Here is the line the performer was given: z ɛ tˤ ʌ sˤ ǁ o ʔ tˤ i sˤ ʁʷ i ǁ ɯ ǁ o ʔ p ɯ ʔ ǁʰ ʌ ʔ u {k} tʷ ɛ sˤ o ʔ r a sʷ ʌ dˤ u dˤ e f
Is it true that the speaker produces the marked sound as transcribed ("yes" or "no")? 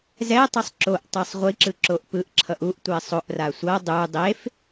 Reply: no